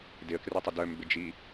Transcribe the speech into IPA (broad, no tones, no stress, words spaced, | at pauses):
dɪə̯kretˤʊ dœmbɪd͡ʒi